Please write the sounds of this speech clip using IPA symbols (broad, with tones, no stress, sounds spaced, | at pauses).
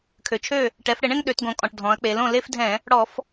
kʰ ø˩ t͡ʃʰ ø˥˩ | ʈ ɛ˩˧ f ɽ ɪ˧˩˧ ɳ ẽ˥˧ ŋ ɗ ø˩˧ t ɡ õ˩˧ kʼ ɔ̃˩ ʈ dʱ ɔ̃˩˧ ɐ̯ k͡p e˩˧ l õ˥˩ l e˥˧ f dʱ ɛ̃˧˩˧ | ɽ ɔ˧˩˧ f